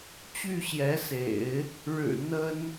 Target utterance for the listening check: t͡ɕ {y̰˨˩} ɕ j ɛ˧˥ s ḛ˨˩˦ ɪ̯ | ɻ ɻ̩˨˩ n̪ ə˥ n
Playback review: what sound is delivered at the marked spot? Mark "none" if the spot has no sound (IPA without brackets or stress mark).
y˥˩